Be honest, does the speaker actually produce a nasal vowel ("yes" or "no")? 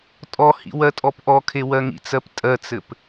no